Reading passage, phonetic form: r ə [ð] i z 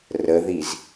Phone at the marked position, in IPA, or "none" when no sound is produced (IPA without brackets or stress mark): ð